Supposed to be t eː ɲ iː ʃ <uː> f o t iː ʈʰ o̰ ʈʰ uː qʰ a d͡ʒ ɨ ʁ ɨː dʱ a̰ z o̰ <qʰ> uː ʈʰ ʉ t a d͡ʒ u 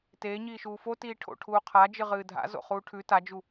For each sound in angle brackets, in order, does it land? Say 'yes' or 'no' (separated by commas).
yes, no